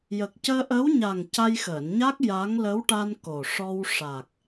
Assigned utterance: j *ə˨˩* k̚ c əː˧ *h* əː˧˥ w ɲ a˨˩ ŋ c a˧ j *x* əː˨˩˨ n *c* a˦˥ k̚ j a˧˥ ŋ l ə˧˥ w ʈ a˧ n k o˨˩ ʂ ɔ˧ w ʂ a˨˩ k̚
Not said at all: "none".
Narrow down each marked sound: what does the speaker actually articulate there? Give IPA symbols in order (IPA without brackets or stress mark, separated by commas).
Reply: ə˨˩, ʔ, x, ɲ